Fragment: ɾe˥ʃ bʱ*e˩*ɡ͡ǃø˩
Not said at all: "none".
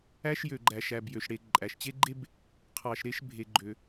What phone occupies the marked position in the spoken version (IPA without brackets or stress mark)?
e˩